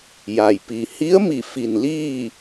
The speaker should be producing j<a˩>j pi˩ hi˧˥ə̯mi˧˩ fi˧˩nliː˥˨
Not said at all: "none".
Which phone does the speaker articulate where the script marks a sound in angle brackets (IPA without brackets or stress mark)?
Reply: a˩